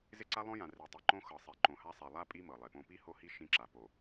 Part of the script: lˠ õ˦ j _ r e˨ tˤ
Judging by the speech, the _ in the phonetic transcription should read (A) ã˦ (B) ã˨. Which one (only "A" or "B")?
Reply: B